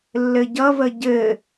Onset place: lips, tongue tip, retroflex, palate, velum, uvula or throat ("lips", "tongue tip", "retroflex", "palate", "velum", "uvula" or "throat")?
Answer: tongue tip